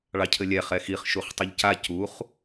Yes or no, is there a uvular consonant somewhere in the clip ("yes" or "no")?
yes